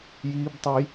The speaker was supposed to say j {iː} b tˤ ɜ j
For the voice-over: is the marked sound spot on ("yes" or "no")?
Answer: yes